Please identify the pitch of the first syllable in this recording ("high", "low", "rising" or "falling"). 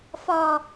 low